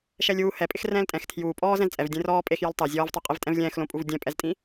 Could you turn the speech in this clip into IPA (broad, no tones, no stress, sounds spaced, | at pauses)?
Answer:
ʃ ɛ lʲ uː h ɛ pʼ ɪ x r ɛ̃ː l tʼ ɛ̃ x tʰ j uː pʼ ɔː z ɛ̃ z t͡sʼ ɛ v dʲ ẽ r ɔː pʼ e x j ɔ l tˤ ɛ zʲ ɔː v tˤ u qʼ i v tʼ ɛ̃ v lʲ ɛ̃ː x l õ pʼ u v dʲ ɛ̃ pʼ ɛ z tʼ ĩ